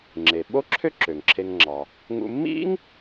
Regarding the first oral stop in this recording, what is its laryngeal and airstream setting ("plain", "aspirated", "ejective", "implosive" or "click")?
click